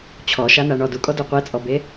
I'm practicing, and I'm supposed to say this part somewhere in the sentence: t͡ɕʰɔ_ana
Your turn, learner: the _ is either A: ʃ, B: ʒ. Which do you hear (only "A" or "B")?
A